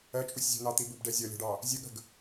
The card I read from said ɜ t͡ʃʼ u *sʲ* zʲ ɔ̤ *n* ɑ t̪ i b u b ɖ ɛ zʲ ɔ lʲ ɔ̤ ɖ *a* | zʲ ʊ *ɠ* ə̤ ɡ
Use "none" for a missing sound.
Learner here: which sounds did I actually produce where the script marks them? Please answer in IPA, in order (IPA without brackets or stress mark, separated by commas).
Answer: sʲ, n, ɑ, ɠ